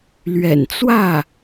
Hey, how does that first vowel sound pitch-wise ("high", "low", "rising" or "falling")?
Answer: low